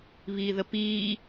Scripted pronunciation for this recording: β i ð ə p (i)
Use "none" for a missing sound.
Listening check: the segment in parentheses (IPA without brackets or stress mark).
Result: iː